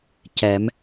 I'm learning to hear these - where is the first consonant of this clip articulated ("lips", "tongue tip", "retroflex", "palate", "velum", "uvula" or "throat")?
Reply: palate